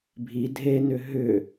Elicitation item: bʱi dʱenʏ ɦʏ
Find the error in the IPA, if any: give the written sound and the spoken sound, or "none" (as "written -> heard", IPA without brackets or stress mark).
none